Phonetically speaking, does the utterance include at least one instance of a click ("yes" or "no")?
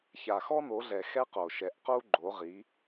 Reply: yes